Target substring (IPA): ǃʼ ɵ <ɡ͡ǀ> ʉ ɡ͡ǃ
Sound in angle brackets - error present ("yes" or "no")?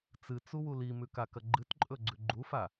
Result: no